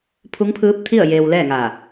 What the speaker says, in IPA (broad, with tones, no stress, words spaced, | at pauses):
pʰu˧˥ŋpʰɯː˧˥p̚t̪ʰi˥˨ə̯ jeː˧wlɛː˥˨ŋa˧˩